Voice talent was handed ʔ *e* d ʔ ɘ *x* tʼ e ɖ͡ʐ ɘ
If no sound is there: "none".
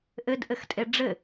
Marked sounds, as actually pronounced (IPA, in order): ɘ, x

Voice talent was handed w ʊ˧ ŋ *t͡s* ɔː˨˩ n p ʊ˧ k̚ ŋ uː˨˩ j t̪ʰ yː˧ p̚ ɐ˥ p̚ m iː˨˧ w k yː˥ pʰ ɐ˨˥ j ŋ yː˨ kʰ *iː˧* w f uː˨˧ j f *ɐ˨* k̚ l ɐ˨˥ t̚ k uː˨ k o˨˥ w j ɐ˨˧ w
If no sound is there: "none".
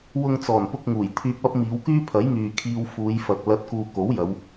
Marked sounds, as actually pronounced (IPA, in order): t͡s, iː˧, ɐ˨

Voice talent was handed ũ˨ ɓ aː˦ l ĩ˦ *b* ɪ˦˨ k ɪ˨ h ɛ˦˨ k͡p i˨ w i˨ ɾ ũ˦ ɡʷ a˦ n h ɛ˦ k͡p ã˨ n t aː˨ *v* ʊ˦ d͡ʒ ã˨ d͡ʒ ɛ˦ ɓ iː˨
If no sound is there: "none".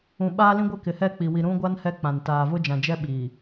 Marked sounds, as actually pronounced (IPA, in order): ɡʷ, v

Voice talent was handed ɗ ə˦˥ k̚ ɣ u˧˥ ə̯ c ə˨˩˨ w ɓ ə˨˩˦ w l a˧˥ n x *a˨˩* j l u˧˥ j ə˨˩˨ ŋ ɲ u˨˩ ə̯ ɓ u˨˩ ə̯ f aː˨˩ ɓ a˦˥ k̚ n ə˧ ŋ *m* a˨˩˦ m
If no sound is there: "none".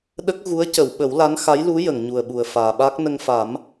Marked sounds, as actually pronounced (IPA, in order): a˧˥, f

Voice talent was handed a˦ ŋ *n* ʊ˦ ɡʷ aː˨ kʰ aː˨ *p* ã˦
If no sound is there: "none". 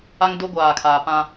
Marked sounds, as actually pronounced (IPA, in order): d, p

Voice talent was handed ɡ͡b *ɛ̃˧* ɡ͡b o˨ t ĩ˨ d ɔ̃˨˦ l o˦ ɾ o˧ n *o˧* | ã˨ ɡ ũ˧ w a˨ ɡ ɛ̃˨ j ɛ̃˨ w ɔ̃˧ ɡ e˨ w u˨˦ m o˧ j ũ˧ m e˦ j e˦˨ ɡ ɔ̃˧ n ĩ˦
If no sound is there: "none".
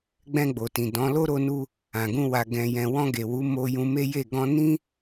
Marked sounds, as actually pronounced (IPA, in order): ɛ̃˧, u˧

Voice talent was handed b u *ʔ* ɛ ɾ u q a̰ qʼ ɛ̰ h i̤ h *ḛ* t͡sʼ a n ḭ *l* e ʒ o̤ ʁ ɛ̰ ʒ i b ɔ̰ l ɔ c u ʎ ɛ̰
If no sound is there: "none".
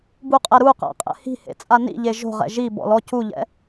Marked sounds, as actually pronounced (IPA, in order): qʼ, ḛ, ʎ

